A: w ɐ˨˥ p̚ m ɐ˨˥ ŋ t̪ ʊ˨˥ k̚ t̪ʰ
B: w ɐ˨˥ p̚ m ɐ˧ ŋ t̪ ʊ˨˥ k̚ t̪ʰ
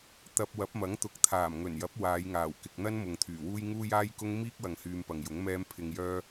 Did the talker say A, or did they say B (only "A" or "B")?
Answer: A